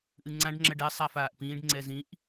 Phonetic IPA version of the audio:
ʔ ɨ ŋ͡ǀ ã ɖ ŋ͡ǁ ɐ ɖ ɛ sˤ a f aː ʔ p ĩː ɖ ŋ͡ǀ ɛ z ĩ ʔ

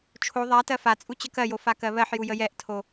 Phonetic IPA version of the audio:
t͡ʃʰ o ðˤ a t ɜ f a t͡sʼ u t͡ɕ ə k ɜ j o f a k ɜ β ɜ ħ j u j ə j ɛ ʔ tʰ o

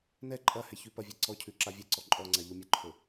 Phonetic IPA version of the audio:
n ɛ ǃʼ ɐ h ɛ ç ʉ p ɐ vʲ ɛ ǀ ɔ cʰ ʉ ǁ a vʲ ɛ ǀ ɔ ǃʼ ɔ ŋ͡ǀ a ʎ o mʲ ɐ ǃʰ o

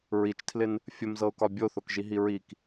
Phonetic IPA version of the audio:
ɹ i t͡ʃ tʰ l ɪ n | fʲ ə m z ɤ ʊ̯ k ɒ bʲ o θ o k ʒ i ɦ i ɹ i k

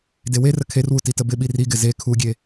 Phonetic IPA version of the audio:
d e w e r ə kʰ e r w u t i t ə b ɪ ɓ i r i ɡ ɪ z e kʰ u ɡʲ e

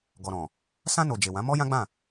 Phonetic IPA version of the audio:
ɡ ɔ˨ ɾ ɔ̃˨ | s ã˧ n o˨ d͡ʒ e˨ w ã˨˦ m ɔ˦ j ã˦ ɡ͡b ã˦˨

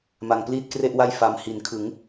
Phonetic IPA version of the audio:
m a˨˩ ŋ p l iː˥˩ t̚ k r e˥˩ ʔ w a˥˩ j f a˨˩ m h i˩˦ n kʰ ɯ˩˦ ŋ

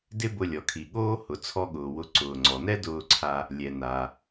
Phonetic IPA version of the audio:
d ɪ˥ b ʊ˧ lʲ ɔ˩ kʰ i˩ ɠ oː˥ h ʊ˩ t͡sʰ ɔ˧ ɠ ʊː˩ w ʊ˧ ǀ ʊː˩ ŋ͡ǀ ɔ˩ n ɛ˥ d ʊː˧ ǀʰ a˧ | lʲ ɛ˩ n a˩

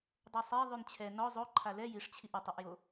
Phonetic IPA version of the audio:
dˤ ɛ sˤ e ðˤ ʉ n t͡ɕʰ ɛ n ɔ zˤ o ǃʰ a l ɛ j i ʂ t͡ɕʰ i ʔ ʏ tˤ i ʔ j o

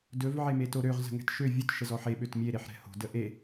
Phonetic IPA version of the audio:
d ɵ v ʕ e m e t o ɾ ø ʁ z ə̤ ŋ ɛ̤ t ʃ ø vʲ ɵ t ʃ ə z ɔ ħ e ɓ ø t mʲ e ɾ e ħ ɾ ɛ̤ h o̤ d ə ʔ e

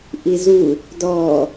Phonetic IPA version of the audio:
ʔ i z u | d ɔ

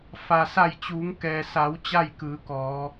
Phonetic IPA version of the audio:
f a˩ s a˧˩ j t͡ɕ uː˩˧ ŋ k ɛː˩ s a˩˧ w t͡ɕ a˥˨ j k ɯː˩˧ k ɔː˩˧

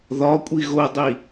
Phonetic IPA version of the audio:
ð ɒ kʷʼ i ɣ o dˤ i

